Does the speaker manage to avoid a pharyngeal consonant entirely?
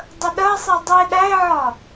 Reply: no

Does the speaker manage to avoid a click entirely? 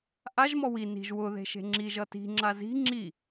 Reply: no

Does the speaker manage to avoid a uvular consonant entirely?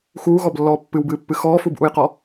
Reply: no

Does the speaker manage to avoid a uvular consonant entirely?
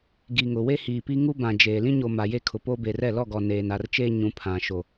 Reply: yes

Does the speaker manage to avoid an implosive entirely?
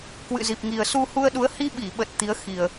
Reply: no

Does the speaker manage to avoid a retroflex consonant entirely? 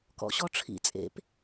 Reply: no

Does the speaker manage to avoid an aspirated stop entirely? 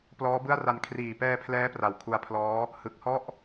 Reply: no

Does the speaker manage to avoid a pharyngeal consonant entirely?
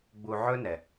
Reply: no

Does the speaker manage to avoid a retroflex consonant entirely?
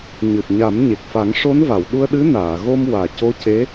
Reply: no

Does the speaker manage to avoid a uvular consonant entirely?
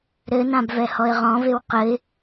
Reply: no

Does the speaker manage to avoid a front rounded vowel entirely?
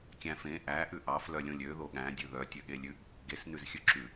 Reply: no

